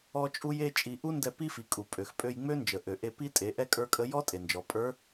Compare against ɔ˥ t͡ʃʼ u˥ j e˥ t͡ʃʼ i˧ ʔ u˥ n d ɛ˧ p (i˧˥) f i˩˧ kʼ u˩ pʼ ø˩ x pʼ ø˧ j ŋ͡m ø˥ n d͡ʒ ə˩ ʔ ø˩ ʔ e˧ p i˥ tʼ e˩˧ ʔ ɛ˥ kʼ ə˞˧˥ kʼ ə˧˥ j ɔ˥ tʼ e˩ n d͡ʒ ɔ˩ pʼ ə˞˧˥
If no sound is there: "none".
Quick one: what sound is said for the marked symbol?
i˥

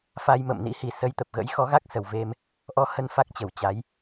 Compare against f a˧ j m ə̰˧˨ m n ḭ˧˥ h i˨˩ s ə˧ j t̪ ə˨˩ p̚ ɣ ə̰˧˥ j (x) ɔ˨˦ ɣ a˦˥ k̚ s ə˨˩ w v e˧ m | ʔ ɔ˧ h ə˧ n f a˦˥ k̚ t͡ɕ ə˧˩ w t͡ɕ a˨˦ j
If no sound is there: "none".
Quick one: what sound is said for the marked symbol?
x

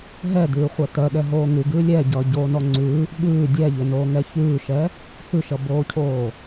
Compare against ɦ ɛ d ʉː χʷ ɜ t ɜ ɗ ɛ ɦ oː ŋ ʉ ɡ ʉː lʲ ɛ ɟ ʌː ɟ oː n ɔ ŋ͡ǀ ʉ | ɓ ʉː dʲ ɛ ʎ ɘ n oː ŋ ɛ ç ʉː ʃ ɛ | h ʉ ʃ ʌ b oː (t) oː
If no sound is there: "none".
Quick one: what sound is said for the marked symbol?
cʰ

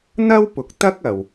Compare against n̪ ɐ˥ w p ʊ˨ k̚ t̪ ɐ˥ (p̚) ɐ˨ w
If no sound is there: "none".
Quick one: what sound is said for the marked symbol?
k̚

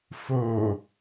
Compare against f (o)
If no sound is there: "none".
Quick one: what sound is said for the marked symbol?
o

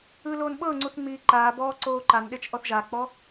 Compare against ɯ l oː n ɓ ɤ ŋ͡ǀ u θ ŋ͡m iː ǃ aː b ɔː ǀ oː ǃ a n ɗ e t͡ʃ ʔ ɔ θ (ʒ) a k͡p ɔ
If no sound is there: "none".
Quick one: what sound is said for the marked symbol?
ʒ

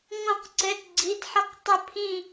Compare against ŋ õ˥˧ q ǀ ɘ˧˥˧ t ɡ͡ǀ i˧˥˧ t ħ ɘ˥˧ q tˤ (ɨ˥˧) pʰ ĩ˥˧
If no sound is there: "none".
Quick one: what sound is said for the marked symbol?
ə˥˧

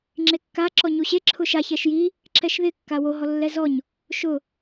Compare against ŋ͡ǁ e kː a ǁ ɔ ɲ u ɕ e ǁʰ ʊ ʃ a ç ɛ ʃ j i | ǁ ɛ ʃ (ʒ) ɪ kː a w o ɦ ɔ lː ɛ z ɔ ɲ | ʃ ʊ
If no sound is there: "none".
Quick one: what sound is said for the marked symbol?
ð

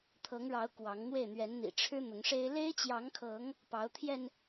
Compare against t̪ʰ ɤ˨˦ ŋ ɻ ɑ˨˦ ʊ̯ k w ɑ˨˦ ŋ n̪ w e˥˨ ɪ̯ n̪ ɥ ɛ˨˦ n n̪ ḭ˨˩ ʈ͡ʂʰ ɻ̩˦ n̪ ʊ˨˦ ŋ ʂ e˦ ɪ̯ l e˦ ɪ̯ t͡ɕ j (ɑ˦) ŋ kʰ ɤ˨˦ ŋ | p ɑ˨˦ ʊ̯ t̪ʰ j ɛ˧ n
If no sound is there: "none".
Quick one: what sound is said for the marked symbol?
ɑ˨˦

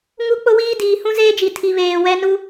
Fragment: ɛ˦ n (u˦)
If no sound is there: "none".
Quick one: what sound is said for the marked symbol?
u˦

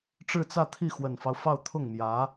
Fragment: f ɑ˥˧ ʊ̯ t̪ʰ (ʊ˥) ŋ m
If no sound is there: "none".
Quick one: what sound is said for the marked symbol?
ʊ˥˩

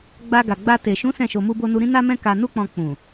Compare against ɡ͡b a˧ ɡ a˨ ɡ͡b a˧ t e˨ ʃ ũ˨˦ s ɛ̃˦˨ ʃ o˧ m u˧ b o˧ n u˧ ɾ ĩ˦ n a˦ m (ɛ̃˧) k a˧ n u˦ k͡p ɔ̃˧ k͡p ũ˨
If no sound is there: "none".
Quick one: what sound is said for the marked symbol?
ɛ̃˦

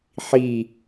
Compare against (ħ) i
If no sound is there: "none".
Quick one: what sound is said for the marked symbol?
ħ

